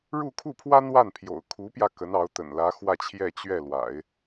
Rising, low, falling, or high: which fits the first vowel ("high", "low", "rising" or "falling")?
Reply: falling